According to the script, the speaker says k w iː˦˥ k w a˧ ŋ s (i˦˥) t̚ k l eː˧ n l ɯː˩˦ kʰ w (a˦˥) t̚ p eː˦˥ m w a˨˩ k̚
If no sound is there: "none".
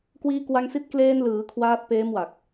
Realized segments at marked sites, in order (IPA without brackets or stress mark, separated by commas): i˦˥, aː˦˥